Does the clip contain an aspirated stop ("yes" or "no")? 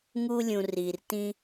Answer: no